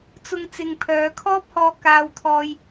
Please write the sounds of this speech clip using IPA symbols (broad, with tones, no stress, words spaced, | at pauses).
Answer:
t͡sʊ˧ŋ t͡sɪ˧ŋ pʰœː˨˧kʰɔː˥p̚hɔː˧ kaː˥wt̪ʰɔː˥j